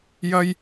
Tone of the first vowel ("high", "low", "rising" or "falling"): high